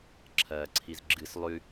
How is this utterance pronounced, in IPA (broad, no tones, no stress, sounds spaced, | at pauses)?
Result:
ǁʰ ɐː ǀʰ i z ɡ͡ǁ ɨ s lˠ ʉ